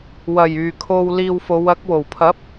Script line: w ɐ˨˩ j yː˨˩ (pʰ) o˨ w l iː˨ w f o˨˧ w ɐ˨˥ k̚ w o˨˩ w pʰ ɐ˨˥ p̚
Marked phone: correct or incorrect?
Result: incorrect: kʰ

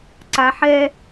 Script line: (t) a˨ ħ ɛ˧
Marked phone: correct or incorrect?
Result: incorrect: ǀ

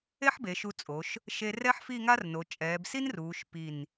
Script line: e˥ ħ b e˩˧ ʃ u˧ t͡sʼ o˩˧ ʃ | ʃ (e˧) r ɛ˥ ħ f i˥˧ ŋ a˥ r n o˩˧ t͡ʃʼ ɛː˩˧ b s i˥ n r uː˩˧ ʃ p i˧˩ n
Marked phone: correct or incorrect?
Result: correct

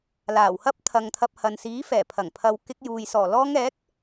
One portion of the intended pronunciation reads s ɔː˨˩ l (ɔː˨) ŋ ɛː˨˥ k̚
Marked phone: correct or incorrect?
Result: incorrect: ɔː˧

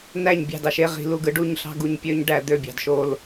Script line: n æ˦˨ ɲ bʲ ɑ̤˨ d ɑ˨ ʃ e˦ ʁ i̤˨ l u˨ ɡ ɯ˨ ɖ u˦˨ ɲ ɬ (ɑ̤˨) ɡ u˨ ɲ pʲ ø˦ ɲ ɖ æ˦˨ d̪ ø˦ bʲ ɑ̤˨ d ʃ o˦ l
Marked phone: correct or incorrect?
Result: incorrect: ɑ̤˦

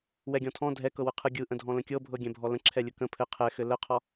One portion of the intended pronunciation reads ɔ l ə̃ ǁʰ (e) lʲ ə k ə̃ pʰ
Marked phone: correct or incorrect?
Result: incorrect: ɛ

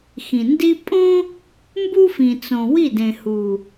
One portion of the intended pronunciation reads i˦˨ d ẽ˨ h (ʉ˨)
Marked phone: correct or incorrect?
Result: incorrect: u˨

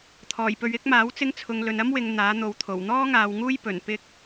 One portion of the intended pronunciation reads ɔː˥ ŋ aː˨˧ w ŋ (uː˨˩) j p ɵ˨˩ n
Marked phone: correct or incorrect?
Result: incorrect: uː˥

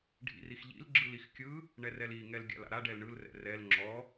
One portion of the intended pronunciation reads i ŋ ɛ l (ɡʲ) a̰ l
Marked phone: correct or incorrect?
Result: correct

